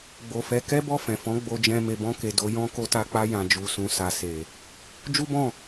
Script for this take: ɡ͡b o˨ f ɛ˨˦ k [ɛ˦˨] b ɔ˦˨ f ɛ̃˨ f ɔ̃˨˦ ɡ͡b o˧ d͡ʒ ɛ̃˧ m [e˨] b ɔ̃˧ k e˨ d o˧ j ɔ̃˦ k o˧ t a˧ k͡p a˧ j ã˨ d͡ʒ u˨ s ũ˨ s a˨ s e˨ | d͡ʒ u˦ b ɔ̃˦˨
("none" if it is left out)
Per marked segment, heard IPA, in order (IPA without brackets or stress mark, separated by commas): ɛ˦, e˨